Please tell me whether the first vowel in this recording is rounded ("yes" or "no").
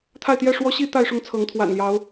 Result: no